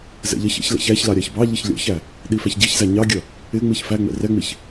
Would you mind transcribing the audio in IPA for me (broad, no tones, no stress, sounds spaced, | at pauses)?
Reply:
z ɛ̰ ʎ ʌ ç ɛ̰ ç l ɛ̰ ç æ ç l ɑ ɾʲ ɑ ç b ɑ ʎ ɪ ç lʲ ɔ̰ ç æ | ɗ i f æ ç ɟ i ç z æ ɲ ɑ ɡʲ ʌ | ɪ ŋ͡m i ç f æ ŋ͡m ɛ̰ r ɛ ŋ͡m i ç